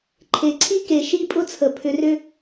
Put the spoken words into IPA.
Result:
ǃʰ e˨ ǀʰ i˦ k e˨ ʃ i˦ pʼ ʊ˦ t͡sʰ ə˨ pʰ ʏ˨ r ʏ˧

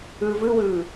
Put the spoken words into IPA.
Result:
ɯː v ɯ w ɯː

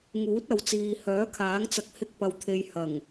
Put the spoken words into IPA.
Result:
ŋ uː˨˥ t̚ ɐ˨ w t͡s iː˨ h œː˨˥ kʰ aː˨˥ ŋ t͡s ɐ˧ k̚ h ɪ˧ k̚ p ɐ˨ w t̪ʰ e˨ j h ɐ˨˩ ŋ

